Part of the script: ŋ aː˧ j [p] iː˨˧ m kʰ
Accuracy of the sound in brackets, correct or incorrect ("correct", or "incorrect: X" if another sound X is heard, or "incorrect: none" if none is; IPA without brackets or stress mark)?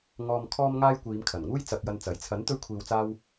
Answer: incorrect: kʷ